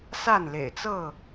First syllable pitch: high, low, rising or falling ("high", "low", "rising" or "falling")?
falling